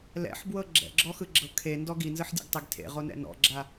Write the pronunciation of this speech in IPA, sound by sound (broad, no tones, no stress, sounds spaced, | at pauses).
l ɛ̰ ħ b w ɤ ɡ͡ǁ ɛ̰ ɡ͡ǁ ɔ x ɯ ɡ͡ǁ ɤ kʰ e n d ɔ ɡ i n z ɯ ħ dʲ ɛ̰ ɡ tˤ i ɡ tʰ ḛ ʁ o n ɛ̰ n ɔ̰ ɡ͡ǁ a